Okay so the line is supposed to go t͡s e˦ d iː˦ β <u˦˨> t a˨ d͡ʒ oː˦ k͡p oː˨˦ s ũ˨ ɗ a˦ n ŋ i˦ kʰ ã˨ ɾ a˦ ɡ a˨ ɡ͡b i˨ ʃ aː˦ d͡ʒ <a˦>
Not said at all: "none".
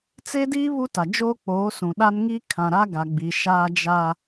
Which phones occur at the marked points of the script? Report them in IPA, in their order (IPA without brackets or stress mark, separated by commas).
u˦, a˦